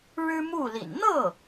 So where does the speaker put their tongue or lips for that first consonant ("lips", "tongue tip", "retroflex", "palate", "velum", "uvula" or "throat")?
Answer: retroflex